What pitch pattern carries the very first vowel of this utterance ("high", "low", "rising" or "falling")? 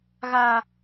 high